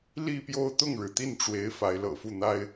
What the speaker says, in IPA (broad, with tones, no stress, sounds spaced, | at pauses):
l i˥˧ p j o˥˧ ʊ̯ t̪ ʊ˥˩ ŋ ɻ ɻ̩˩ t̪ i˥˩ n ʈ͡ʂ w e˧˥ ɪ̯ f a˧˥ ɪ̯ l ɤ̰˨˩ f u˥˩ n̪ a˥ ɪ̯